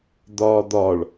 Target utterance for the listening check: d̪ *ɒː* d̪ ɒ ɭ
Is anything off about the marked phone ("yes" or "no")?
no